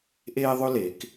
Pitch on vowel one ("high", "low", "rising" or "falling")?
high